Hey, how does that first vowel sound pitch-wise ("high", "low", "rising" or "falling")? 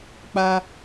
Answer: high